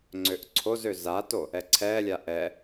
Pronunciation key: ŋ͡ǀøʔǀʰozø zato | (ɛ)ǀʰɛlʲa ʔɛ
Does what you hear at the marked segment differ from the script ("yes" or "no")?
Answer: no